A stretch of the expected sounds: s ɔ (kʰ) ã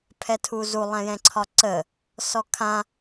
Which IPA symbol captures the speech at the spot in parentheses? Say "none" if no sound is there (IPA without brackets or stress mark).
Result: kʰ